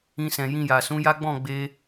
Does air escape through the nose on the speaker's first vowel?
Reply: yes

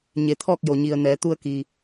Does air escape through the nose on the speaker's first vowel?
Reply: no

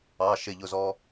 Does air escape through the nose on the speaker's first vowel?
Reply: no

